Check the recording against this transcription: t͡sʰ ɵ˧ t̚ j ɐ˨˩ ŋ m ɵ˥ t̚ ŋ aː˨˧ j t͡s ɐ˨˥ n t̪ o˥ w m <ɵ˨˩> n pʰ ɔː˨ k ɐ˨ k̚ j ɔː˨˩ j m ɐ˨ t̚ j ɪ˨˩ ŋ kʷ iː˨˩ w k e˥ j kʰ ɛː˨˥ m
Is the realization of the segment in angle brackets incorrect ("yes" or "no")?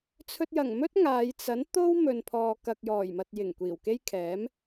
yes